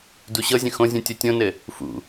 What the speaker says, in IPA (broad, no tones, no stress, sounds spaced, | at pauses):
d u ɕ ɤ zʲ ə̃ x õ zʲ ũ tʲ o tʲ õ n ɘ | f ṵ